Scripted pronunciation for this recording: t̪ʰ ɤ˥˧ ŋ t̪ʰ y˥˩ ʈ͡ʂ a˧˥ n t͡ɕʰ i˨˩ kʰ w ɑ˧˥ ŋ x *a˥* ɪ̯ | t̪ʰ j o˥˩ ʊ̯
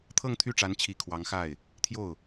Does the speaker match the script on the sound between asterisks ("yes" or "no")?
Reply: no